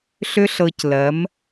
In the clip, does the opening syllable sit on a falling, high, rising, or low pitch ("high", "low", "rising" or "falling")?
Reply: high